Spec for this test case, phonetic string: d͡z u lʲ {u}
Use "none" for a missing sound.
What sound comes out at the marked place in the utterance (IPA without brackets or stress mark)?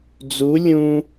ũ